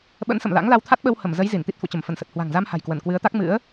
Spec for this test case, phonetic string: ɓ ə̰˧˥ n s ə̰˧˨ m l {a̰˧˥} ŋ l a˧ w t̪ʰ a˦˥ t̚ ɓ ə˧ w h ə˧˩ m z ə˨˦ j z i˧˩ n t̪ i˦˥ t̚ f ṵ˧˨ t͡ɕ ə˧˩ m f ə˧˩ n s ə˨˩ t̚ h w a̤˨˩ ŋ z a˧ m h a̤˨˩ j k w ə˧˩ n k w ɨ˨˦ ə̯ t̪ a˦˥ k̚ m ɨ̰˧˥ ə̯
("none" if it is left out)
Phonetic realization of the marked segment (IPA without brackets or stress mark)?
a̰˧˥